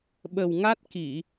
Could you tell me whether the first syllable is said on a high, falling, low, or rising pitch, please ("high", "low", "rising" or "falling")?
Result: low